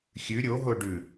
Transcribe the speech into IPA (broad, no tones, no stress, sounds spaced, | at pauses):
xʲ ʉ ɾʲ o ɦ o ɖ ʉ